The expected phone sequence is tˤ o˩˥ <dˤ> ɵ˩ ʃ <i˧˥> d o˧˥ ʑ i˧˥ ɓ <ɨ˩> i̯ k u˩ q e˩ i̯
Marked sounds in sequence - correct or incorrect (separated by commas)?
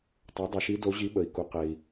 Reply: correct, correct, incorrect